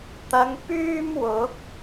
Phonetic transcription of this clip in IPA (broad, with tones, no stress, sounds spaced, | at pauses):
t̪ ɐ˨˧ ŋ p yː˥ m w ʊ˨˥ k̚